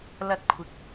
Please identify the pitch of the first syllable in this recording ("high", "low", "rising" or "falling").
high